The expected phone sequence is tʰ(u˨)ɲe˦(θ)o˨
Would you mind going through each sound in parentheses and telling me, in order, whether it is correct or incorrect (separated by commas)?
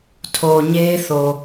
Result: incorrect, correct